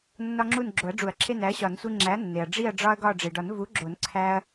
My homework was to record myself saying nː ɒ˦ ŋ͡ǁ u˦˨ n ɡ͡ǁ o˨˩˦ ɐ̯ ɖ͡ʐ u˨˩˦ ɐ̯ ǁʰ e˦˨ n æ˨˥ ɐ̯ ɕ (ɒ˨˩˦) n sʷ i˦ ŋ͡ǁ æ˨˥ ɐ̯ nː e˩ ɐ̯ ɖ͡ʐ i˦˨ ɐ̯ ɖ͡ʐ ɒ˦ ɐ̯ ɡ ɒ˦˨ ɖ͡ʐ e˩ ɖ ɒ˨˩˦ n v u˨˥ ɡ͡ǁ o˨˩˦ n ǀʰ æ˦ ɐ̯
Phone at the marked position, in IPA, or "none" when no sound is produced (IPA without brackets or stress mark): ɒ˨˩˦